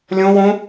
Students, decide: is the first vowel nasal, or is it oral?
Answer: nasal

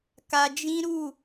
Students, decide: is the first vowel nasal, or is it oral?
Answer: oral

